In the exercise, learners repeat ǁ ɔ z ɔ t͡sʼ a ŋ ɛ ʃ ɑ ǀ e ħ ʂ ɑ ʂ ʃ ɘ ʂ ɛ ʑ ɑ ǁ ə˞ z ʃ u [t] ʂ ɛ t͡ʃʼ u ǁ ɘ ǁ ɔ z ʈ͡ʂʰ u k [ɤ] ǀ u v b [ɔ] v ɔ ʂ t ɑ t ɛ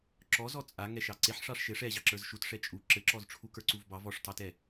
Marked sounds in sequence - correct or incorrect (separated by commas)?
correct, incorrect, incorrect